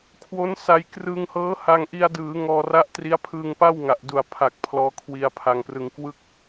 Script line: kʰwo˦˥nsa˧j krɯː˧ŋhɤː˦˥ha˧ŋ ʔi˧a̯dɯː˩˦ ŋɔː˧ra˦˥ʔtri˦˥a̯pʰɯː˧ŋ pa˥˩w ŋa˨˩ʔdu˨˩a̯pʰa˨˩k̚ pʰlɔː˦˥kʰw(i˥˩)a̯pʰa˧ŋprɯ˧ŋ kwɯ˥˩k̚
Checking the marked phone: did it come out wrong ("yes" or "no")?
yes